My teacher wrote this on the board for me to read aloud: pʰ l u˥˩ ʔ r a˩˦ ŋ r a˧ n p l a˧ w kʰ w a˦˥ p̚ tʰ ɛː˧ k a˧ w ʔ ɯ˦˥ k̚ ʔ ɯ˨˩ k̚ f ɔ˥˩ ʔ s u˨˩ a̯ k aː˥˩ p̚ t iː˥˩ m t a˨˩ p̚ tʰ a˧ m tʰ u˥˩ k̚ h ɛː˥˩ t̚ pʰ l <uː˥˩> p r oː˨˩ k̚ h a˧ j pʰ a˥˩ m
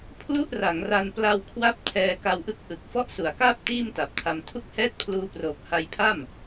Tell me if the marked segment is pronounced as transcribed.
no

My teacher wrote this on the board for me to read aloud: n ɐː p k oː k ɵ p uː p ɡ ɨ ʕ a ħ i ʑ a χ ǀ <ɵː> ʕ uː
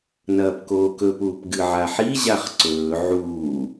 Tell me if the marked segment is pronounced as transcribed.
yes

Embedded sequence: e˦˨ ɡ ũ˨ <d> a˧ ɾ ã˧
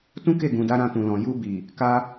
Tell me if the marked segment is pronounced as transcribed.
yes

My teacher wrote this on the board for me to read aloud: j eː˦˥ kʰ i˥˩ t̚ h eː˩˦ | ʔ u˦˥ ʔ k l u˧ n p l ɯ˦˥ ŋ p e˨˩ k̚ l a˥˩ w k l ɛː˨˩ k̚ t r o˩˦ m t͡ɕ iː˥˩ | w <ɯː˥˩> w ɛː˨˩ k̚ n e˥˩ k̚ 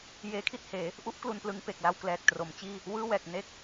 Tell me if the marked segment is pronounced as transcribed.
yes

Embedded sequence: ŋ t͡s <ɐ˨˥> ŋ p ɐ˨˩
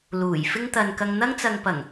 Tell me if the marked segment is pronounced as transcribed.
no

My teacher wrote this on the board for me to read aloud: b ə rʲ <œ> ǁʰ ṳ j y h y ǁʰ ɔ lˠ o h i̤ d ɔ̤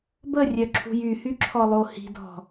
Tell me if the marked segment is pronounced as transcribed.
yes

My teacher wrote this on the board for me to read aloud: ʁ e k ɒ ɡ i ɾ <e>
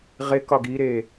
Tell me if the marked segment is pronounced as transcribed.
yes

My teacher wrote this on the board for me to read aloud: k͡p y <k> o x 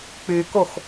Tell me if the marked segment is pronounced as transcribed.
yes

